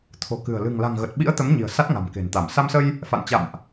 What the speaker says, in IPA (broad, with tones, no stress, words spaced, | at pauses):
t̪ʰo̤˨˩kɨ̤˨˩ə̯ lɨ̤˨˩ŋla̤˨˩ŋɣə˨˩t̚ɓḭ˧˥ə̯ t̪ə˨˦mɲi̤˨˩ə̯ sa˦˥t̚ŋa̤˨˩mke̤˨˩nt̪a˧˩m sa˧msə˧j | fa̰˧˨nt͡ɕa̰˧˨mʔ